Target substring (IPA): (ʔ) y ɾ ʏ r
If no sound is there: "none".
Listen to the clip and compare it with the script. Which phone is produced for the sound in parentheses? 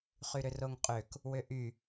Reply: χ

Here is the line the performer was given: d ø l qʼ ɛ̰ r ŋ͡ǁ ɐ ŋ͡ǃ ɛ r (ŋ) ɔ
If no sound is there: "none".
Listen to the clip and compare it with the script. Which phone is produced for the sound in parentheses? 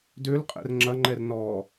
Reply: n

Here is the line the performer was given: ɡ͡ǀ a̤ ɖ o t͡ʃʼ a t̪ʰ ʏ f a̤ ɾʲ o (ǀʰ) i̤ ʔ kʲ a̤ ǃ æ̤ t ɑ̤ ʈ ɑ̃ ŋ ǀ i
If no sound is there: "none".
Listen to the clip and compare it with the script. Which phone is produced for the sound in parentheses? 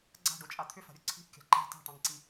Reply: ǀʰ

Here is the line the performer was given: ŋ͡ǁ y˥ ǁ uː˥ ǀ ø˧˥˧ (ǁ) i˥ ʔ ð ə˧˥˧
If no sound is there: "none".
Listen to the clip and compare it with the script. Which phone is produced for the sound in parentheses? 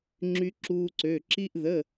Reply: ǁ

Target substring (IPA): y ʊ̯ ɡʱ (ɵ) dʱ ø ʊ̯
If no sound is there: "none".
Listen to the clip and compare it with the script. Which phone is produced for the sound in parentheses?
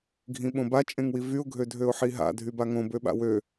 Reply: ø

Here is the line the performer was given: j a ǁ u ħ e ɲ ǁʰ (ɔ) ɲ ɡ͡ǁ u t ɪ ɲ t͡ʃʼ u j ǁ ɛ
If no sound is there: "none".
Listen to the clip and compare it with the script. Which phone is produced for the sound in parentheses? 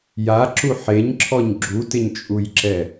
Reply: ɔ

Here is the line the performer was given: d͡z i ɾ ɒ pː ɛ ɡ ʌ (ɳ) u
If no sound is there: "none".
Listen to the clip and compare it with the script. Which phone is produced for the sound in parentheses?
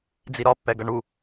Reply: ɳ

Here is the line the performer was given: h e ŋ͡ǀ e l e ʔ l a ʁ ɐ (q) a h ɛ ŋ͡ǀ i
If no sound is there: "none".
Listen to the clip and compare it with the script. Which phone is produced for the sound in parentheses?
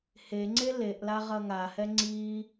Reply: ŋ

